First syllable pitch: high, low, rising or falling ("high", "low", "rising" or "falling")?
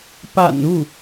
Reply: low